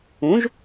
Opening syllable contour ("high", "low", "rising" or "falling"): rising